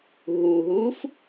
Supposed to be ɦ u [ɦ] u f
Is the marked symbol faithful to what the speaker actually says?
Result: yes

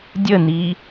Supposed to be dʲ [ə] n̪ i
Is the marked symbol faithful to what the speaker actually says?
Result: yes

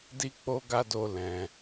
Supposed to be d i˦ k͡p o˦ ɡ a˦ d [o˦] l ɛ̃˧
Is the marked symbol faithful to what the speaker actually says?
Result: no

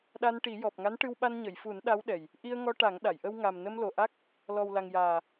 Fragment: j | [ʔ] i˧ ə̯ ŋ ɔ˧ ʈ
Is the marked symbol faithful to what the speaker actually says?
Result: yes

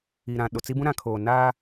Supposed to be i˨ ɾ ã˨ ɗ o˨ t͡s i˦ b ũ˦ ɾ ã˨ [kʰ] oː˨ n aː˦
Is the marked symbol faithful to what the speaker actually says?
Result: yes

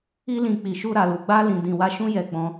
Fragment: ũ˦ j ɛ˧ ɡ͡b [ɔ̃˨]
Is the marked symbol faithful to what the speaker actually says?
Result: no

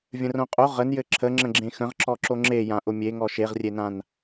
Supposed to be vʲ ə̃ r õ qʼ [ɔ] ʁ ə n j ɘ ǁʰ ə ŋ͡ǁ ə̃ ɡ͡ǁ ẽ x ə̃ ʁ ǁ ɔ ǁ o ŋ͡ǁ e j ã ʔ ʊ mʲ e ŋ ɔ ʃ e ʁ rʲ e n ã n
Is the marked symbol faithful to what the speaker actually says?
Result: no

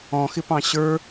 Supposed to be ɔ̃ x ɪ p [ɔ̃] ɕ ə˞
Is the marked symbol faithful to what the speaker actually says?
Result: no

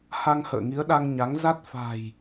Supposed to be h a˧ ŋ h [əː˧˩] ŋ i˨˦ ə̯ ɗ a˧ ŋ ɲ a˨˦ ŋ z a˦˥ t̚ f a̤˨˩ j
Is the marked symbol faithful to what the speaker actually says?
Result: no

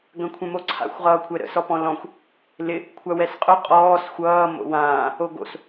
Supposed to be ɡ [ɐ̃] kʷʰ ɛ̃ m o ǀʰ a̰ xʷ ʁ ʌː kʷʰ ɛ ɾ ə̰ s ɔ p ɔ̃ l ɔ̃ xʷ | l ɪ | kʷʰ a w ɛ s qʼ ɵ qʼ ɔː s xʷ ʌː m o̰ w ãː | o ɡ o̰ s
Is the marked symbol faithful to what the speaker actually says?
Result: yes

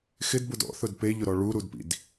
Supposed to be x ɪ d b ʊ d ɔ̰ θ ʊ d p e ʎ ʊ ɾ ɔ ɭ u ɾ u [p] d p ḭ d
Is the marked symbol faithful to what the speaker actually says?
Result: no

